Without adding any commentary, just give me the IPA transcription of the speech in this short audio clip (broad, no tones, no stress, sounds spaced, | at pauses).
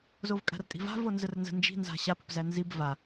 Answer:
z o v kʼ a̤ r tʼ i̤ v a̤ v o n z ə r n z ə̤ n d͡ʒ i̤ n z a̤ ɕ a p ə̤ p z æ n z i b v a